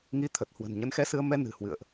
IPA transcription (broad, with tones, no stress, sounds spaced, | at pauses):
ŋ i˧ t̪ʰ ə˨˩ t̚ h w ə̤˨˩ n ɲ ə˨˦ n x ɛ˧ s ɨ˧ ə̯ m ɛ˧ n ɨ̤˨˩ h w ɨ̰˧˨ ə̯ ʔ